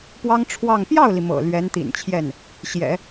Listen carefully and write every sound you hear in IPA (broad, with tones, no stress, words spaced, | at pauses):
pwɑ˥ŋʈ͡ʂʰwɑ˥˧ŋ pjɑ˥˩ʊ̯li˩ mɤ̰˨˩ lɥɛ˧˥nt̪ḭ˨˩nt͡ɕʰjɛ˥˩n | ɕjɛ̰˨˩˦